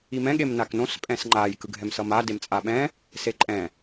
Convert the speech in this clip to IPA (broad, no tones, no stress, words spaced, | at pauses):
imɛ̃ ɠemnaknõs pʼɛ̃sŋ͡ǃaj kɯɡʱɛmsʌma demt͡sʼaɓɛ̃ | seǃʼɛ̃